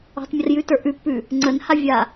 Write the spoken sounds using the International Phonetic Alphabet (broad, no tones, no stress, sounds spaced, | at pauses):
ɔ̤ tˤ mʲ ə r j ʉ t ə˞ ʔ ʉ pː ʉ | ŋ͡ǀ ə n h a vʲ a